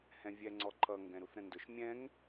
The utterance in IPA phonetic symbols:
h ɛ̃ vʲ ɛ ŋ͡ǀ ɔ ǃʰ ʌ ŋ ɡ ɛ̃ ɾ u θ ɾ ə̃ n d ʊ ʃ mʲ ɛ̃ ŋ

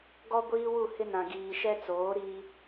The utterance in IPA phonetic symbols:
ɡ ɔ˦ ɡʷ iː˦ w u˦˨ h ɪ˦ n ã˨ ɡ iː˨ ʃ ɛ˦ t͡s oː˨˦ ɾ i˦

